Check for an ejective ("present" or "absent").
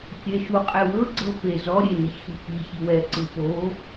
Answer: present